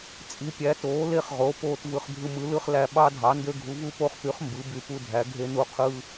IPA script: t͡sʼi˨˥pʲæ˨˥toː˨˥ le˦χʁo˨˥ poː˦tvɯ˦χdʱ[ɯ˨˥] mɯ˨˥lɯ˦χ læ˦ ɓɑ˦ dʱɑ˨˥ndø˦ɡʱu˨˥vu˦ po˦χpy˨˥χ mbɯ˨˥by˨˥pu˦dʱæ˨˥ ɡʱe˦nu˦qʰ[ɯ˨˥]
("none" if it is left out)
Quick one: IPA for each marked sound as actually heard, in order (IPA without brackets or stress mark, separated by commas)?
ɯ˦, ɯ˦